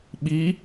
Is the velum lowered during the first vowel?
no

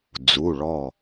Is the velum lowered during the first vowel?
no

